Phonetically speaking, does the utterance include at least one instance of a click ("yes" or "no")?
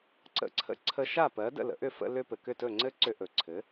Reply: yes